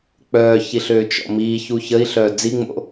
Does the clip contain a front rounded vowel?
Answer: yes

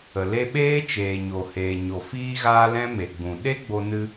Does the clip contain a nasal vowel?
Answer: yes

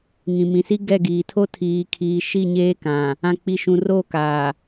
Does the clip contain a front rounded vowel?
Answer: no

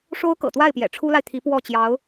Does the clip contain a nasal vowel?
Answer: no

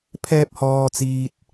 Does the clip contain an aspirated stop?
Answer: yes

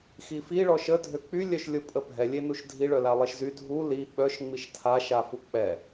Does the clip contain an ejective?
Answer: yes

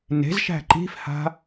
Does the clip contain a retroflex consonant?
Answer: no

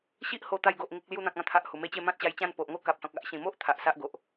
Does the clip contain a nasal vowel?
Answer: yes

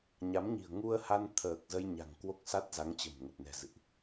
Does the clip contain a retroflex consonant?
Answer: no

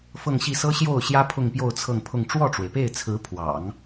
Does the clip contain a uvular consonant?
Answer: no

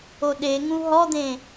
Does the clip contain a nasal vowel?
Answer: yes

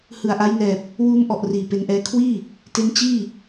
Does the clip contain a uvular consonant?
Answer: no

